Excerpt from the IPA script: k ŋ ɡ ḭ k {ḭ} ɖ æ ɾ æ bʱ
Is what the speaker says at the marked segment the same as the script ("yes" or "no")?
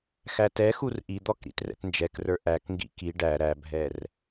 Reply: no